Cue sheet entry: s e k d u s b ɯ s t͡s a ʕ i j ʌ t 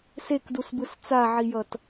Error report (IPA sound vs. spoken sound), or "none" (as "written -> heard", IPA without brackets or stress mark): none